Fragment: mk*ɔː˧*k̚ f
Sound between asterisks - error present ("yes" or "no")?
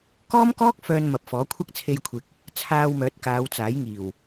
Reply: yes